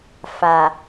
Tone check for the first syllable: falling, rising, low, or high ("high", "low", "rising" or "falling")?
low